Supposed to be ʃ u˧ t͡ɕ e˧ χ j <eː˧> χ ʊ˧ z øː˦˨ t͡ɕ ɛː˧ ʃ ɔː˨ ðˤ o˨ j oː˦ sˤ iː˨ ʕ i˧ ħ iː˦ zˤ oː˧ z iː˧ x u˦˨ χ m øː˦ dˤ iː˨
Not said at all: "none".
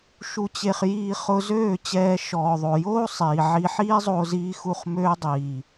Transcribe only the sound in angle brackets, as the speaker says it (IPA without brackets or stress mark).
iː˧